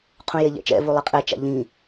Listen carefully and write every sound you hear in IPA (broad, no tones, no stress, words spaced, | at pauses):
qʰũjeʎɛ̰t͡ʃɛ̰ vulˠeqʼɛ t͡ʃa̰ʎĩ